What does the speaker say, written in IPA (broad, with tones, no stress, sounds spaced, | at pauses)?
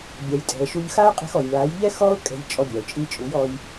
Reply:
bʲ a˨ j tʼ ɛ̤˨ ə̯ ʃ u˧ ʎ x a˦ ʊ̯ qʼ ɛ̤˧ x ɔ˨ j ɭ a˨˦ j ʎ ɛ˦ x ɔ˦ ʊ̯ kʼ ɛ̤˧ ʎ t͡ʃʼ ɔ˧ bʲ a˨ ʊ̯ t͡ʃʼ i˧ t͡ʃʼ u˨˦ j ɔ˧ j